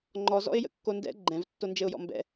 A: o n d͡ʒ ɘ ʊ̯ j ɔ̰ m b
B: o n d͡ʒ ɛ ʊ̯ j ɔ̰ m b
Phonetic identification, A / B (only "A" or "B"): A